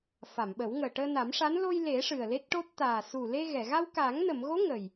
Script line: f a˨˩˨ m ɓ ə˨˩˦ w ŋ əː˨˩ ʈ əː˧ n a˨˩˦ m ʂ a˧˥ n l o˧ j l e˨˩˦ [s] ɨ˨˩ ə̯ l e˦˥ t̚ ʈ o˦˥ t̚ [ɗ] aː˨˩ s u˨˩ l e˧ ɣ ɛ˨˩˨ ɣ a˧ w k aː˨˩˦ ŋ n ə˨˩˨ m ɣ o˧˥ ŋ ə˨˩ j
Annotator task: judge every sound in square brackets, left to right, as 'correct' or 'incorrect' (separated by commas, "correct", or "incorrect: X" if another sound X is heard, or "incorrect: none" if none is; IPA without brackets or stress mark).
incorrect: ʂ, incorrect: t̪